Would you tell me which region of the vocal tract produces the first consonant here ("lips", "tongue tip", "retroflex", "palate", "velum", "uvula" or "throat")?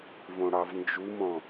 lips